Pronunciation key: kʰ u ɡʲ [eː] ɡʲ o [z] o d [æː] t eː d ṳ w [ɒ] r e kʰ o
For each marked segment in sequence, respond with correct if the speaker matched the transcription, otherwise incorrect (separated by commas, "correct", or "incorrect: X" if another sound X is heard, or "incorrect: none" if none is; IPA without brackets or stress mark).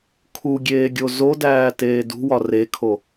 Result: correct, correct, correct, correct